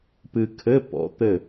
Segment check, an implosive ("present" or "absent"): absent